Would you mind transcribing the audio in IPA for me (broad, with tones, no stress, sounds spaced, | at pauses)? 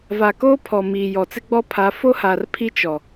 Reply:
v a˨ k oː˦ pʰ ɔ˨ m iː˨ j ɔ˨ t͡s ɪ˦ ɡ͡b ɔ˦ pʰ a˨˦ f o˦ h a˨ r pʰ i˦ t͡ʃ ɔ˨